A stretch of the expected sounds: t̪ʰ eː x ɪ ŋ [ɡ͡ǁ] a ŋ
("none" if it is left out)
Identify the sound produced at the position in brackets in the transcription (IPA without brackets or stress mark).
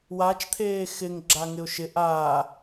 ɡ͡ǁ